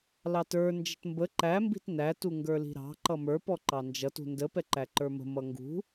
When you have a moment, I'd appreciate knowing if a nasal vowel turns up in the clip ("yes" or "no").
no